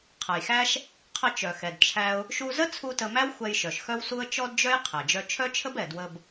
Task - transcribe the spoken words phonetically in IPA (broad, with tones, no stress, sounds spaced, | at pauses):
qʰ ə˩ j x æ˥ ʃ | qʰ ə˧ t͡ʃ œ˩ x ɛ˩ d t͡ʃʰ æ˧ ʊ̯ | ʃ u˧ z ə˥ t͡sʰ u˧ t ə˧ m æ˥ w xʷ ɛ˧ j ʃ œ˩ ʃ x œ˥ w s u˥ ə̯ t͡ʃ ɔ˥ d d͡ʒ œ˥ j qʰ ɛ˩ d͡ʒ œ˧ t͡ʃʰ œ˥ t͡ʃʰ ə˥ b ɛ˩ d w ə˧ b